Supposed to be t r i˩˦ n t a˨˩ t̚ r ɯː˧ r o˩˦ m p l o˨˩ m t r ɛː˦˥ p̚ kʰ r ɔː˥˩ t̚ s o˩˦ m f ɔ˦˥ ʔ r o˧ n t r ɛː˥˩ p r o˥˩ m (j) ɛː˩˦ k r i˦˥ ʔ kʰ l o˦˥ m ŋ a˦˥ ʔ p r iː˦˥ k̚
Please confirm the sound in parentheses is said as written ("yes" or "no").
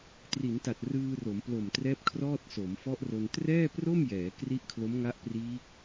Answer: yes